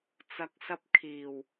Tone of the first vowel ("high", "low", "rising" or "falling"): low